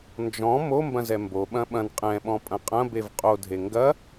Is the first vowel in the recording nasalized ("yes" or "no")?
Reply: yes